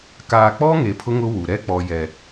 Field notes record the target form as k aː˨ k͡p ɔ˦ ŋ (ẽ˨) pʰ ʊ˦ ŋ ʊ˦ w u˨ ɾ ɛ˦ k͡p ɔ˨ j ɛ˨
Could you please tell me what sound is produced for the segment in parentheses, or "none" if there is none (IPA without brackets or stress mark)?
e˨